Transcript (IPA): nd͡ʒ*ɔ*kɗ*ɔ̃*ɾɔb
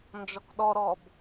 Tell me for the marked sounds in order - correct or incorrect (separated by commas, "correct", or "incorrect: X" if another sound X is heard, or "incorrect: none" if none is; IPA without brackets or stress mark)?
correct, incorrect: ɔ